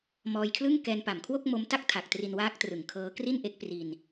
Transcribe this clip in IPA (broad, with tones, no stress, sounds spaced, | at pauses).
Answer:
m ɔː˧ j kʰ l ɯ˥˩ ŋ k ɛː˧ n p a˨˩ m kʰ w o˥˩ k̚ m o˦˥ m t a˥˩ k̚ tʰ a˨˩ k̚ t r i˧ n w aː˦˥ k̚ t r ɯ˨˩ ŋ kʰ ɤː˦˥ k r i˥˩ n ʔ e˦˥ k̚ p r i˧ n